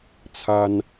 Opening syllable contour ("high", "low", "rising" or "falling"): high